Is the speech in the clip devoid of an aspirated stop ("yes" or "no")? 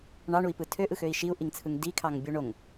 no